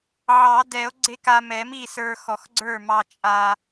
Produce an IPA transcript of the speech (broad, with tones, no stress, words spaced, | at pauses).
ʕɑ˨˩˦dɛ˨˩˦o̯ ɡ͡ǀe˧ ka˧mɛ˨˩˦mi˥˩ sə˞˧xɔ˨˩˦xɡ͡ǀə˞˥˩mɑ˧ t͡ʃʼa˧